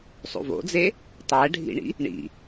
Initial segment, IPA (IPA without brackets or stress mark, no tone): sˤ